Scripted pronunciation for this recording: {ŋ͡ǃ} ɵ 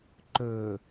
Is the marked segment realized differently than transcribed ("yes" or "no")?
yes